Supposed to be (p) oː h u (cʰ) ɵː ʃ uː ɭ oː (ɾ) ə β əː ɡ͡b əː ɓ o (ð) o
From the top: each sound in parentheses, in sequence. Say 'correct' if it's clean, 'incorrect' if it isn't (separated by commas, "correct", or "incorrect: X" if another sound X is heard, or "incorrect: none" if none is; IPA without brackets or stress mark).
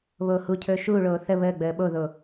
incorrect: β, correct, incorrect: θ, correct